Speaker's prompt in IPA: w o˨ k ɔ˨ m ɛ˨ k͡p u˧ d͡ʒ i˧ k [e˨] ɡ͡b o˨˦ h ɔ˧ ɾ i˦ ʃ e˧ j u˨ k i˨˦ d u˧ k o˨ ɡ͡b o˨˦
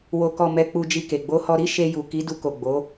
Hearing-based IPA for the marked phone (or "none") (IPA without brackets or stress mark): e˨